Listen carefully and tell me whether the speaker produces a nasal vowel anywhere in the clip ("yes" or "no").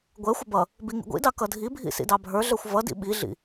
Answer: no